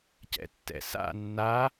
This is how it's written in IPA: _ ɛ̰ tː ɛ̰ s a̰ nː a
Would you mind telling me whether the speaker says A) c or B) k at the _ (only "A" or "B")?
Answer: A